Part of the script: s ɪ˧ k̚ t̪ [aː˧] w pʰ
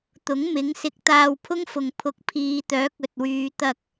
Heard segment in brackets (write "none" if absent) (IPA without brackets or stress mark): aː˧